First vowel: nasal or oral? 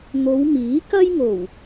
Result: oral